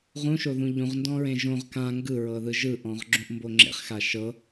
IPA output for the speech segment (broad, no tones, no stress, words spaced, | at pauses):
ʁũʃoðũ ʎũʁndɔ̃ɹẽ ʒõʁ kã ŋɡɯɹɤðɯ ʒɯʔɔ̃ʁɡ͡ǁũʔmbo ŋ͡ǁḛχxa ʃɤ